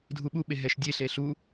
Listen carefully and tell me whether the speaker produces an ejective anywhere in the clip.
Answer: no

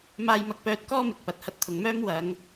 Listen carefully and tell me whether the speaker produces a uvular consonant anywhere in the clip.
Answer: no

